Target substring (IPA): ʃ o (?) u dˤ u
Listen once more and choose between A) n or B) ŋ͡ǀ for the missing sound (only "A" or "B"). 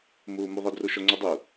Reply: B